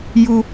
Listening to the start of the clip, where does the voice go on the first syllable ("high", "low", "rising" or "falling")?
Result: high